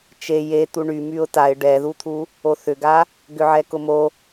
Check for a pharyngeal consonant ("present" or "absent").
present